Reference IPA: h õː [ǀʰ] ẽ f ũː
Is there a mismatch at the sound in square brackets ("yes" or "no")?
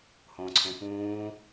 no